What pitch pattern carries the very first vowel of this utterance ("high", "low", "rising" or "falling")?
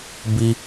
low